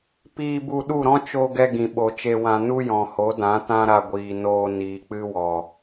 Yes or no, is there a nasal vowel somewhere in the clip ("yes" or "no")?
yes